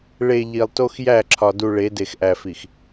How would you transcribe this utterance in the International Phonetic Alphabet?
ɭ e˨ ʎ i˨ lˠ t o˦ x j æ˦˨ ǁʰ ɒ˨ d u˨ ɭ e˨˦ d e˨ x ʔ æ˨ f i˨ x

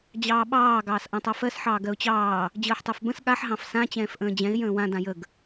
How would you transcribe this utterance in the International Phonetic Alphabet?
d͡ʑ ɑː ɓ ɑː ɡ ɑː s ʔ ã tˤ a f ɜ s ħ ɑː ɡ ɜ ʊ̯ t͡ɕ ɑː | d͡ʑ əː ħ tˤ ɛ f b ə̃ s ɠ a ħ ɦ ɑ̃ f s ã t͡ɕ ɛ̃ː f ʔ ə̃ː d͡ʑ ɛ̃ ɪ̯ j ə̃ː w ã d ã j ə ɡ

